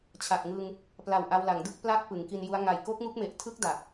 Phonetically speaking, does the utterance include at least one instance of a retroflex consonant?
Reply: no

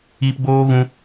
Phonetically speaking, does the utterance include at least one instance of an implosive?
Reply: no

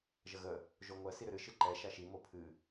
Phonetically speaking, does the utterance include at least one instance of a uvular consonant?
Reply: no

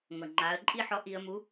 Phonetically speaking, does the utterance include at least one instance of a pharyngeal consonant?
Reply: yes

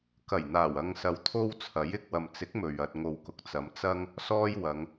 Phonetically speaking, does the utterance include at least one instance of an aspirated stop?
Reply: yes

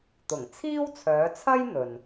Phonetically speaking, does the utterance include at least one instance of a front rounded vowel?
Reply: yes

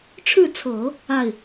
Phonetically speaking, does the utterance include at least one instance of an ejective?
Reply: no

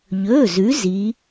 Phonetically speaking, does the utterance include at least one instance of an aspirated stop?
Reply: no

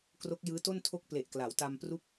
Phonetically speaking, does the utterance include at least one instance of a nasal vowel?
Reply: no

